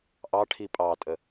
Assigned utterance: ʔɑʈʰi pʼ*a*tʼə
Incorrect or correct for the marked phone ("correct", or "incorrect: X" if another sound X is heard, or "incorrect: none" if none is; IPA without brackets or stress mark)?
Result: incorrect: ɑ